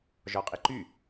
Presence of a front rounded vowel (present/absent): present